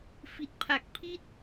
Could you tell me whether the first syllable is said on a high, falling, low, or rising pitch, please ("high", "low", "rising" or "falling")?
low